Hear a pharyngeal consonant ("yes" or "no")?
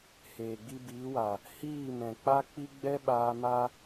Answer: no